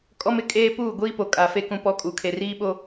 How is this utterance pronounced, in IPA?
kʼ ɔ˦ m ɪ˨˦ kʼ eː˦ p uː˦˨ ɡʷ iː˦ p o˨ kʼ a˨˦ f e˦ k ũ˦ p ɔ˦ kʼ uː˨ kʰ e˨ r iː˦ ɓ o˦

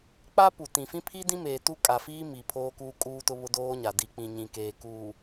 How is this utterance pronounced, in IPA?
k͡p a˦ p u˨ t ĩ˨ f ĩ˦ pʰ i˦ d ĩ˦ m eː˨ t u˦ kʼ a˨ f iː˦ m i˨ pʰ oː˦ k uː˦ kʼ uː˦ t ʊ˦ β ʊ˦ d oː˦ ɲ a˨ d i˨ k͡p ĩ˨ ɲ ĩ˨ k eː˨ k uː˨

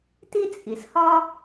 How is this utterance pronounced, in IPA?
t i˥ t͡sʼ i˩ s h ɒ˥

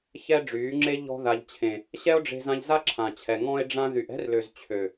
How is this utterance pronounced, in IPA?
ç ɛ˦ ɖ͡ʐ yː˨˦ ŋ͡ǁ e˦ ʎ ɔ̤˧ ð a˨ ʎ t͡ɕʰ ẽ˨ | ɕ ɛ˦ o̯ ɖ͡ʐ e̤˧ z ã˧ ʎ z a˦ ǁʰ ã˨ t͡ɕʰ ɛ˨ ŋ ɔ̃˧ e̯ ɖ͡ʐ ã˧ ð y˨ ʔ ɛ̤˧ r l ø˨ z t͡ɕʰ ø˨

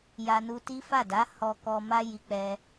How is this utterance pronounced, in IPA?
j a˧ n u˧ t i˦ f a˦˨ d a˨˦ h ɔ˧ k ɔ˧ m a˦ j i˧ k͡p ɛ˧

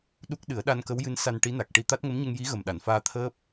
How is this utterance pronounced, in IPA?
ɗ u˦˥ k̚ ɗ ɨ˨˩˦ ə̯ ɗ a˧ n k ə˧˥ w j ɨ˧˥ n s a˧ n ʈ i˧˥ n a˨˩ k̚ ʈ i˧ t̪ a˦˥ t̚ ŋ ə˧˥ m ɲ ə˧ ŋ j i˧˥ ɣ ə˨˩ m ɗ a˨˩˨ n f aː˧ t̪ʰ əː˦˥ p̚

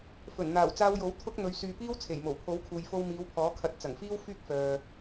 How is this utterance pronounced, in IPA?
f ɵ˨˩ n n̪ aː˨˩ w t͡s aː˧ w j o˨˥ w t̪ʰ ʊ˧ k̚ n̪ ɵ˨˧ ɥ s yː˨ p iː˥ w t͡sʰ e˨˩ j m o˨˩ w pʰ o˨˥ w kʰ uː˨ j f o˧ w m iː˨˧ w pʰ ɔː˨˥ kʰ ɐ˨˥ t̚ t͡s ɐ˨˩ ŋ f iː˥ w f yː˥ k̚ f œː˨

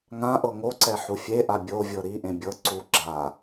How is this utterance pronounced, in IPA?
ŋ ã ʔ ɤ ŋ o ǀ ɛ ħ u fʲ e ʔ a bʲ o vʲ ɤ ɾ i ʔ ẽ bʲ ɤ ǀ u ɡ͡ǁ a

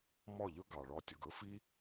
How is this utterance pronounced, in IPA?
m ɔ˦˨ ʎ ɵ˦ ɡ ɑ˨ ɭ ɔ˧ tʲ ɤ˨ ɡ ɵ˦ f i˦

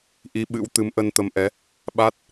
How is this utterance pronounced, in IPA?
ʔ i˨˦ ɓ ɨ̰˧˥ w t̪ ɨ˨˦ m ʔ ə˧ n t̪ ə˨˦ m ʔ ɛ˨˦ | ɓ a˦˥ t̚

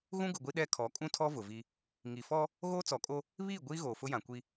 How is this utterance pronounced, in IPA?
ɣ ũ˦ ɡ ʊ˨ ɡʷ i˦ ɗ ɛ˦ kʰ ɔ˨˦ kʼ ũ˦ tʰ ɔ˦ v ʊ˨ v i˦ | ŋ i˨ f ɔ˦ | ɣ oː˦ t͡s ɔ˨ kʼ o˦ | β iː˦˨ ɡʷ iː˦ ɣ oː˨ f ʊ˦ j ã˨ kʷ i˦

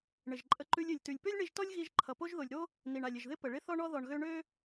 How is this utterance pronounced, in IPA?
ɳ ɪ˨ ʒ ǃʼ ə˧ ǃ ʉ˧ lʲ ø˨ lʲ t ʉ˨ lʲ p ø˦ lʲ ɳ i˧ ʒ t ɔ˦ lʲ ɣ i˧ ʒ ǃʰ ʌ˨ p o˦ ʒ ð o˨ lʲ ɾ o˦ | n i˨ ɳ a˨ lʲ ɪ˨ ʒ ð ɪ˦ p ə˨ ɭ ɪ˦ θ ɔ˦ ɳ ɔ˦ ð ɔ˨ ɳ ɣ ø˧ ɳ ø˦

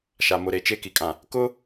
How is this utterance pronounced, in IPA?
ʃ a˨ m ʊ˨ ɾ e˨ t͡ʃ e˦ k i˨ kʼ ã˨ | k ʊ˦

